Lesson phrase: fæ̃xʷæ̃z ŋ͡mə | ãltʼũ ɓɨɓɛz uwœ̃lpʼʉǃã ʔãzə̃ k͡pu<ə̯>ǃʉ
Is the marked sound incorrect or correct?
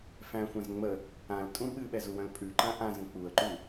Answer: correct